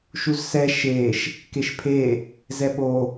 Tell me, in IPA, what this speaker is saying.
ʃ u z s ɛ ʃ e ʃ | k e ʃ pʰ e | z ɛ ɓ o

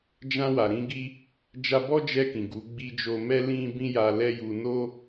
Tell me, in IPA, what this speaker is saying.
d͡ʒ ã˧ w a˨ ɾ ĩ˧ ɡ i˧ | d͡ʒ a˧ b ɔ˦ d͡ʒ ɛ˧ k ĩ˨ ɡ u˨˦ ɡ͡b i˧ d͡ʒ o˧ m ɛ˦ l ĩ˦ b ĩ˦ j a˧ l ɛ˦ j u˧ n o˦

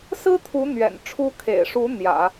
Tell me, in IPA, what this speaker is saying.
s ɹ̩˥ t̪ʰ u˧˥ n̪ ɥ ɛ̰˨˩ n ʈ͡ʂʰ u˥ kʰ ḛ˨˩ ɪ̯ ʂ u˧˥ n̪ j ä̰˨˩˦

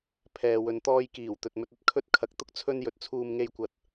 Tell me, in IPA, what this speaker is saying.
pʰ ɛː˨ w ɵ˨˧ n t̪ ɔː˧ j k iː˨˩ w t̪ ɵ˨ t̚ m ɵ˧ t̚ ɐ˨ t̚ kʰ ɵ˧ t̚ kʰ ɐ˨ k̚ t̪ ʊ˥ k̚ t͡sʰ ɵ˧ n j ɵ˨ t̚ t͡sʰ uː˧ m ŋ e˧ j kʷ ɐ˨ t̚

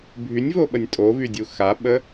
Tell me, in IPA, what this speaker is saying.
bʱ y nʲ v o ɓ ə nʲ tʼ o v y dʲ u x a ɓ ə

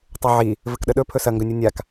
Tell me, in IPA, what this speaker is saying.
tˤ o ʕ i | v ɘ k ɗ ə ɗ ɵ pʰ ɵ s ɐ ŋ ɡ ɵ nʲ o nʲ a k

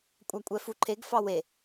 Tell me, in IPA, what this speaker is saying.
kʷʼ a kʷʼ ɛ f u ǃʰ e ɡ f ɑ w e

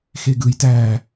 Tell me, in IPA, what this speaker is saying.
x e ɡ ɯ j t æ

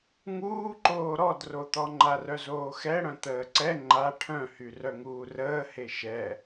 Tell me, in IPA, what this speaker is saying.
ŋ uː ǃ oː ɾ ɔ d r o t̪ ɔ ŋ͡ǃ a r œ z oː x ɛ ɽ œ̃ t̪ əː ǀ ɛ ŋ͡ǃ a ʈʰ œ̃ h y r œ ŋ uː r əː h e ʃ ɛ

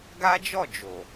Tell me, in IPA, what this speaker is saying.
ɡ a˦ d͡ʒ ɔ˦˨ d͡ʒ o˨

